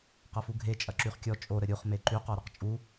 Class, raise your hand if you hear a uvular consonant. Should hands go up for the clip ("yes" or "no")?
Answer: yes